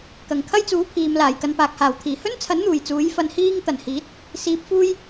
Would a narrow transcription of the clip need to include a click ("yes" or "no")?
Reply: no